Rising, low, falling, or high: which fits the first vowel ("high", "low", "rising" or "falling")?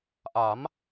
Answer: rising